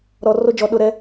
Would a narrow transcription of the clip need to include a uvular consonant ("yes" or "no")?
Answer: no